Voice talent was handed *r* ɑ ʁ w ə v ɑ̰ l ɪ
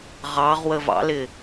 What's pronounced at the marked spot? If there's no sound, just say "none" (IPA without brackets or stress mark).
ʁ